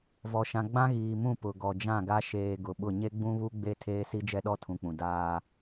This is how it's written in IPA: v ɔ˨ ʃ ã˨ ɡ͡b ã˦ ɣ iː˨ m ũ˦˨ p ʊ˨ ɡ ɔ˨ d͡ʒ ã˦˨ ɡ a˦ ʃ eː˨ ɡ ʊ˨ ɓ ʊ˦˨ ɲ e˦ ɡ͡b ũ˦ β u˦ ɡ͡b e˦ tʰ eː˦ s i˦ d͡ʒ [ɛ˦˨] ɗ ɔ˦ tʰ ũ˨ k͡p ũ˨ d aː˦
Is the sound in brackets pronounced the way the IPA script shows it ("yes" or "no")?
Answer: no